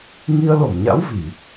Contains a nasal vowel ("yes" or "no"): no